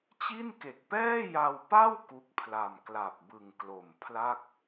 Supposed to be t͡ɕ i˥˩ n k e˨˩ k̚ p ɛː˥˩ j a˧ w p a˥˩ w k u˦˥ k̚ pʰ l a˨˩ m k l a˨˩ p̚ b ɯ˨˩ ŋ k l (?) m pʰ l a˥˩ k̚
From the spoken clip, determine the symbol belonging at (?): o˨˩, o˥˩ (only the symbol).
o˨˩